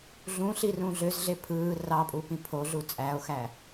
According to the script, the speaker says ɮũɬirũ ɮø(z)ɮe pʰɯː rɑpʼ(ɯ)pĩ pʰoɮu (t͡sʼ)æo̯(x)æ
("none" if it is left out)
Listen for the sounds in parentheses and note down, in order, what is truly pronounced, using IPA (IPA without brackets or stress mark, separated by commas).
z, u, t͡sʼ, x